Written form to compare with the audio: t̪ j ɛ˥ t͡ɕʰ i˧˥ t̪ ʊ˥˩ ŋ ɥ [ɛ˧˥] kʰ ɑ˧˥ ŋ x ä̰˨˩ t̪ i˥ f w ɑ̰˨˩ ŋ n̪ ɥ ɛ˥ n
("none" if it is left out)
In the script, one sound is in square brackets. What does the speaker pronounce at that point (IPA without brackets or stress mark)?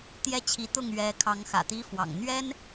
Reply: ɛ˧˥